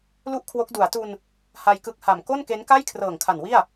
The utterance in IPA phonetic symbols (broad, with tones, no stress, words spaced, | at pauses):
lu˥˩ʔkʰwo˦˥k̚ du˩˦a̯tu˧n | ha˧jkɯ˦˥k̚ha˨˩m ko˥˩nke˦˥nka˥˩j kʰrɤː˨˩ŋkʰa˨˩n wi˥˩a̯